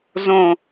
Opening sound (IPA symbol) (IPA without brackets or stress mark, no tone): z